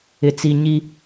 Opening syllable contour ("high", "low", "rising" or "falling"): high